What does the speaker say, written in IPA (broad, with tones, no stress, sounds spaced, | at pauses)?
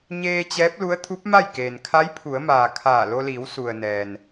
ɲ eː˧ t͡ɕ ɛː˧˥ p̚ l u˧˥ ə̯ t̪ʰ u˧˥ p̚ m a˥˨ j k eː˩ n kʰ a˧˥ j pʰ u˩˧ ə̯ m aː˩ kʰ aː˧˩ l o˧ l iː˩˧ w s u˩ ə̯ n ɛː˩ n